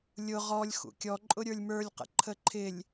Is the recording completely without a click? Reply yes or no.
no